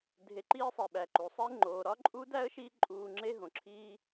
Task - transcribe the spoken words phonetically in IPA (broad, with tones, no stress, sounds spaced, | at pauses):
dʱ e˨ ǃ iː˦ sˤ e˩ ɓ æ˩ ǃ u˩ sˤ e˦ ŋ͡ǃ oː˩ ɾ ɒ˦ ǃʼ u˦ d æ˥ ə̯ ʃ i˦ ǃʼ uː˨ ŋ͡ǁ e˦ ɦ õ˩ ǁʰ iː˦